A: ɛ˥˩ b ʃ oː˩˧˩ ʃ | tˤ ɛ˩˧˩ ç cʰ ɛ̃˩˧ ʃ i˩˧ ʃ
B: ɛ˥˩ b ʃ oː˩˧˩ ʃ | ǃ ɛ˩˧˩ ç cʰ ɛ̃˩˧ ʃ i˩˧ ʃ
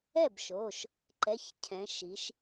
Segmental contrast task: B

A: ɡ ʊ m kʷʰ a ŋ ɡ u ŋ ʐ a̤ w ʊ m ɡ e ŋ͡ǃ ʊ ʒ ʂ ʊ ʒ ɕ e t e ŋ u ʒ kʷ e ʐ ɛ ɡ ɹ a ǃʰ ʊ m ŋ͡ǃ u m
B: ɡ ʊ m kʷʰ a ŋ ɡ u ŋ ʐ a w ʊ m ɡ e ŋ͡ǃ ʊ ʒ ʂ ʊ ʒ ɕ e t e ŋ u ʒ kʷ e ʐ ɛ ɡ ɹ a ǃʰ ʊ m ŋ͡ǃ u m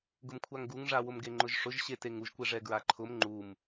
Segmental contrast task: B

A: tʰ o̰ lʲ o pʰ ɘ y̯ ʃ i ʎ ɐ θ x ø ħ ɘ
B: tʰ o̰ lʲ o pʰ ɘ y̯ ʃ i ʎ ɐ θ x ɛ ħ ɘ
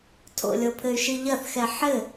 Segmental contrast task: B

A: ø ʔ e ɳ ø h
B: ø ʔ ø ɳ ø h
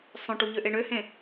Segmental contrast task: A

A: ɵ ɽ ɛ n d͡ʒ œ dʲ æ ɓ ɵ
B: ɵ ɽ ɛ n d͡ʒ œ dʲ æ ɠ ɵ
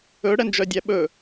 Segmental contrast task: A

